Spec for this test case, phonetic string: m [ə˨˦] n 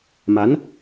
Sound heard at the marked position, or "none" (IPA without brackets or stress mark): a˨˦